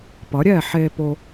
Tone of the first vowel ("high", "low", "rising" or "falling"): rising